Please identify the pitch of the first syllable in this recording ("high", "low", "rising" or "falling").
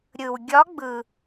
low